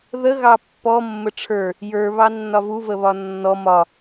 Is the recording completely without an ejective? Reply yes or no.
yes